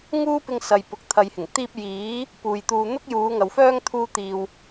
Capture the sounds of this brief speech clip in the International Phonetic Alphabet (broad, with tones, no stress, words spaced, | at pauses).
ŋuː˥pɪ˧ŋ sɐ˨jpʊ˨˥k̚ t̪ʰɐ˧jhɪ˨˩ŋ t̪iː˧p̚ jiː˨˥ | puː˨jt̪uː˧ n̪ʊ˥k̚juː˨˧ŋɐ˨wfœː˥ŋ t̪ʰuː˥t̪iː˧w